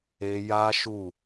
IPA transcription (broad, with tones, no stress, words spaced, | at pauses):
e˧ja˦ʃu˦˨